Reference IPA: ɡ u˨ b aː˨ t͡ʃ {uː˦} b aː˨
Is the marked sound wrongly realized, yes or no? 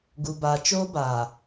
yes